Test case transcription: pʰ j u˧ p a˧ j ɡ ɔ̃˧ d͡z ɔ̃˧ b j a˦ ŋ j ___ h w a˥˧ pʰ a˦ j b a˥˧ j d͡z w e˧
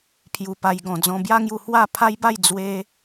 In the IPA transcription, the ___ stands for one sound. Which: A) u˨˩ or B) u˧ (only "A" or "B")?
B